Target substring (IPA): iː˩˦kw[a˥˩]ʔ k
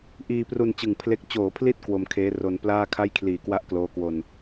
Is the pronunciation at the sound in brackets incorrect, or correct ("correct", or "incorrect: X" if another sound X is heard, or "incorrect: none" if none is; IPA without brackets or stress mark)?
correct